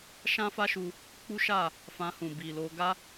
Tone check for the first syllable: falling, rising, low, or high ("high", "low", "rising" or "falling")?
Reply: high